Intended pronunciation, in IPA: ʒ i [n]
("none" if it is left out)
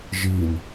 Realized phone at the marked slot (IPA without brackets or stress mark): n